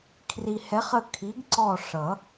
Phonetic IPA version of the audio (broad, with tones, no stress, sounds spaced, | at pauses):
kʰ r i˨ h ɛ˨˥ χ ə˦˨ kʰ i˨˥ ɡ ǀ ɔ˦˨ ʂ ʌ˨˩˦